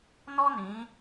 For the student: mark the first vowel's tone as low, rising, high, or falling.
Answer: high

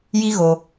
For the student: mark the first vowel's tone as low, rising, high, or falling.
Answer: high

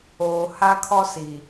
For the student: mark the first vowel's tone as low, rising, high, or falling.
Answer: low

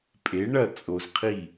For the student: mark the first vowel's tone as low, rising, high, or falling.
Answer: rising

